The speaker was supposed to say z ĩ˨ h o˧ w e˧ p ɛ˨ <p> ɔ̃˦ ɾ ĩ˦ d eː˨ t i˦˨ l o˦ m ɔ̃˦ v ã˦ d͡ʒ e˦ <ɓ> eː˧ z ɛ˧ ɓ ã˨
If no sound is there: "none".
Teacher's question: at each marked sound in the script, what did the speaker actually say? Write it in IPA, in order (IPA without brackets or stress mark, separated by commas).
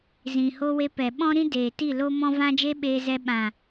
ɓ, ɓ